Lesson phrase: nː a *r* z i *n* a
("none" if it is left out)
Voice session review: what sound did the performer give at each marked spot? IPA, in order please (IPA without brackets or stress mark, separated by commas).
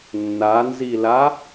n, l